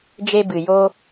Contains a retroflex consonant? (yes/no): no